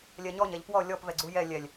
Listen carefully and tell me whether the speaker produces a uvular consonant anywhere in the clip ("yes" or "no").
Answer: no